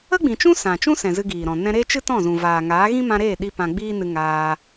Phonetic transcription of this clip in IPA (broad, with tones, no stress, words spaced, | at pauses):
ə˦ɡ͡bĩ˨t͡ʃũ˦ sã˨t͡ʃũ˦sɛ̃˨ zɨ˧ɡiː˨ɾɔ̃˨ nɛ̃˧ɾeː˦ t͡ʃɨ˦tɔ̃˦˨zũ˨ vaː˨ŋaː˨˦ ɣĩ˦mã˧ɾeː˦˨ɗi˧ pã˧ɡ͡biː˦nɨ˧ ŋaː˧